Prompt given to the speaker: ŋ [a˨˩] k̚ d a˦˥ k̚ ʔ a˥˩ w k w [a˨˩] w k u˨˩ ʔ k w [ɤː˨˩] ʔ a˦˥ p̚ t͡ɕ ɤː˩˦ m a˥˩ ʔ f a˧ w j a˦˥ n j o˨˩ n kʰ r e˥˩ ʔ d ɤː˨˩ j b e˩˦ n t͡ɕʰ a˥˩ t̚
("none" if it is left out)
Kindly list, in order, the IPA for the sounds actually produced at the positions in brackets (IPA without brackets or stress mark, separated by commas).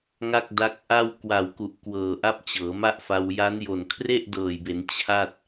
a˥˩, a˨˩, ɤː˨˩